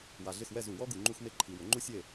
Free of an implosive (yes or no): yes